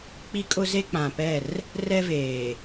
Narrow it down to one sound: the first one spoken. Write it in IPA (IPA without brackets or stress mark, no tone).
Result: k͡p